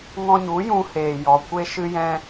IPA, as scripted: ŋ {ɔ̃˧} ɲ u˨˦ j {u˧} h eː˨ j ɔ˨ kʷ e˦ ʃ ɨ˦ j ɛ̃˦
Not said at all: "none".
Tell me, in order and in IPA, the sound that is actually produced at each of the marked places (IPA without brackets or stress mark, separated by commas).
ɔ̃˧, ũ˧